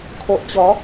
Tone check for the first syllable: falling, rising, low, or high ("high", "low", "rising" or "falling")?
low